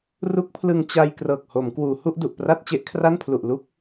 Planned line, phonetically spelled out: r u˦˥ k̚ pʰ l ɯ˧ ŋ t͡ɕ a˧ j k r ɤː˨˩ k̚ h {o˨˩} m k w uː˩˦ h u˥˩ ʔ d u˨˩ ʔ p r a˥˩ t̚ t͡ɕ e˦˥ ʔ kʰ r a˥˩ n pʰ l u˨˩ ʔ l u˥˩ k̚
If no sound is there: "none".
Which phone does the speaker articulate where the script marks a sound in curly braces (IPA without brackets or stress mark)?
o˩˦